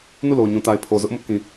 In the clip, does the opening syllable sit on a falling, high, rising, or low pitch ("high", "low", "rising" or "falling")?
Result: falling